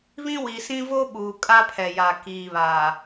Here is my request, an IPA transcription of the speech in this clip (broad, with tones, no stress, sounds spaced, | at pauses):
β ĩ˦ w i˨ s ĩ˦ v o˦ ɓ uː˨ kʼ a˦ pʰ ɛ˨ j a˨ k iː˨ β aː˨